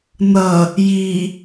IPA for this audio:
n ʌ | j i

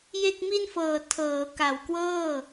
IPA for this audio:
j e˥˩ k̚ m i˥˩ n f ɤː˨˩ tʰ ɤː˩˦ k a˨˩ w k w ɤː˥˩

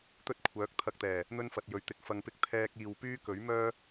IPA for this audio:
t̪ ɵ˥ t̚ kʷʰ œː˨˥ k̚ t̪ʰ ɐ˧ k̚ t̪ ɛː˨˩ | n̪ ɵ˥ n f ɐ˨ t̚ j ɵ˨˥ ɥ t̪ ɪ˨ k̚ f ɐ˧ ŋ p ɪ˥ k̚ t̪ʰ ɛː˥ k̚ iː˧ w p yː˥ k ɵ˨˥ ɥ m œː˥

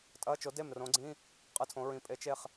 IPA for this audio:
tʼ ɐ˧˥˧ t͡ʃ o˨˥ d e˥˩ m r õ˨˥ ɡ͡ǀ ĩ˧˥˧ | qʼ ɨ˧˥˧ tʰ õ˨˥ ɹ ĩ˨˥ pʼ e˨˥ t͡ʃ e˥˩ χ

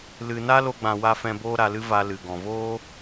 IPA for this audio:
l ɨ˨ n a˦ l o˧ ɡ͡b ã˨ w a˧ f ɛ̃˧ b oː˦ ɾ a˧ l ɨ˦ v a˧ l ɨ˨ ɡ ɔ̃˨ v oː˦

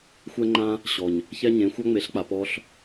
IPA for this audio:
xʷ ɛ˦ ŋ͡ǃ ã˦ | ɕ ɔ˨ ɲ | ç ɛ˦ ɲ ẽ˨˦ xʷ a˦ ŋ͡m e˨˦ ɬ k͡p a˨ p ɔ˦ ɬ

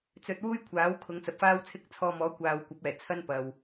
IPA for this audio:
t͡s ɵ˧ t̚ w uː˥ j kʷʰ aː˨˥ w kʰ ʊ˨˧ ŋ t͡s ɐ˨ p̚ f aː˥ w t͡sʰ ɪ˥ k̚ t͡sʰ ɔː˧ m ɔː˨˥ kʷ aː˨ w kʷ ɐ˨˥ p̚ ɛː˨˩ t͡sʰ ɐ˥ n p ɐ˨ w

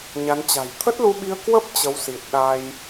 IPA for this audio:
ɲ a˨˦ n t͡ɕ a̤˨˩ j t̪ʰ ə˦˥ t̚ l u˧ ɓ i˧ ə̯ k w ə˦˥ p̚ t͡ɕ ə˨˦ w s i˨˩ t̚ ɗ a˧ j

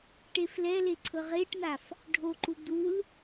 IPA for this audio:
ʈ e f l ɛ l e ǀʰ ɤ ʁ e ʈ n̪ a f | ɖʱ o ǃ u d̪ u l

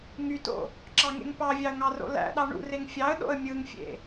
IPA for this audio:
ŋ y t o̰ | ǁ ɑ ŋ ḛ ŋ p ɑ vʲ ɑ ə̯ ŋ ɑ r o̰ l æ̰ ɗ ɑ ɳ ṵ r e ŋ fʲ ɑ ə̯ ɗ o̰ ə̯ mʲ ɯ ŋ fʲ ḛ

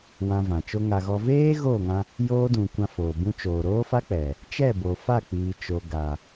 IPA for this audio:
w ã˧ v ã˨ t͡ʃ o˦ ŋ a˧ ɣ ɔ˧ v eː˦ ɣ oː˦˨ ŋ ã˧ | j oː˧ d ũ˨ kʷ ã˧ f oː˨ b ũ˧ t͡ʃ oː˨ ɾ oː˦ f a˦ k͡p ɛ˨ | t͡ʃ ɛ˦˨ b o˨ f a˦˨ k͡p iː˨ t͡ʃ o˨ ɡ a˨

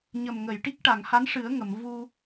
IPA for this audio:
ɲ ə˨˩ m ŋ ə˨˩˨ j ʈ i˦˥ k̚ ʈ a˨˩˨ ŋ h a˧˥ n ʂ ɨ˨˩˦ ə̯ ŋ ə˨˩˨ m v u˧

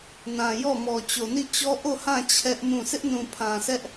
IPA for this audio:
n ã˨ j ɔ˦˨ m ɔ˨ t͡ɕ o˨ n i˦˨ t͡ɕ ɔ˦ ʔ o˦˨ h ã˦˨ t͡ɕʰ ɛ˦ ʔ m ũ˦˨ s ɪ˦ ʔ n ũ˨ pʰ ã˨ sʰ ɛ˦ ʔ

